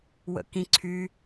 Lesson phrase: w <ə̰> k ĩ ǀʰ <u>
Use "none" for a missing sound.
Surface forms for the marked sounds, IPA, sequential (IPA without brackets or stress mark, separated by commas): ə̰, y